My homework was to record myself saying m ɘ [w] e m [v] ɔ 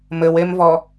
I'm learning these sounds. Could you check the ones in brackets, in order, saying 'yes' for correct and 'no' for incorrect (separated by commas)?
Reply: yes, yes